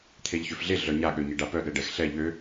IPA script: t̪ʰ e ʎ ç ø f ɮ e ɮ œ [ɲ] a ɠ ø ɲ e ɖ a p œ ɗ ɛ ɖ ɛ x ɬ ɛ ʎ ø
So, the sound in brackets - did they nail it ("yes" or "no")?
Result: yes